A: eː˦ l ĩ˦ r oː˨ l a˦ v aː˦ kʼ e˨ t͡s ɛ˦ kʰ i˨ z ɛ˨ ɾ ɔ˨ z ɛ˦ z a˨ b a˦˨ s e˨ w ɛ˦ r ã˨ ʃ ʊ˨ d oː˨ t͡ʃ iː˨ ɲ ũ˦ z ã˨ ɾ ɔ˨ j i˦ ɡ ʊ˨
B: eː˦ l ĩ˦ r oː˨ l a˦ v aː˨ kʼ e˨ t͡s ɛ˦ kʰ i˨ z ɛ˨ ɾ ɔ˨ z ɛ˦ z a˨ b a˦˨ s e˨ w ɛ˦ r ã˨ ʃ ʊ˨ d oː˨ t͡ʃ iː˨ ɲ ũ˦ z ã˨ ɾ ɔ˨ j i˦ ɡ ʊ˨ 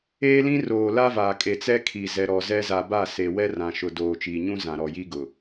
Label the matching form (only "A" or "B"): B